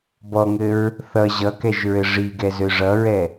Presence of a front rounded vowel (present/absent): present